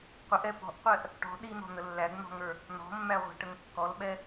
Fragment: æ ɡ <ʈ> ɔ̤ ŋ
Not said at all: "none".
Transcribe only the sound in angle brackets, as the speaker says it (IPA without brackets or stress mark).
n̪